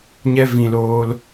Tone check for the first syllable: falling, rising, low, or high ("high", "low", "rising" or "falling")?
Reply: high